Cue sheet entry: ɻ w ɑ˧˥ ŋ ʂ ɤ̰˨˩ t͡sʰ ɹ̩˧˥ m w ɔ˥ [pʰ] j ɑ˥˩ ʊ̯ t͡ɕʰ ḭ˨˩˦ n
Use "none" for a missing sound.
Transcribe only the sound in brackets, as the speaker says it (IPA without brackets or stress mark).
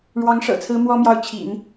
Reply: m